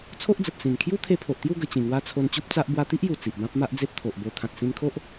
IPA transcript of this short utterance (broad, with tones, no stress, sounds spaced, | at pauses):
t͡sʰ o˦ ʔ d͡z ə˨ p̚ s ĩ˨˩ n kʰ j u˦ t̪ʰ e˧ pʰ o˨ ʔ t̪ j u˥˧ ɡ ə˧ t͡ɕ ĩ˨˩ ŋ w a˦ t͡sʰ o˧ n t͡ɕ u˦ p̚ t͡s a˦ ʔ b w a˧ t̪ i˦ ʔ j u˨˩ t͡s i˨ ʔ b ã˦ p̚ m a˦ ʔ d͡z e˦ p̚ t̪ʰ o˨ ʔ b o˧ t̪ʰ ã˨ t̚ s ĩ˧ n kʰ o˦ ʔ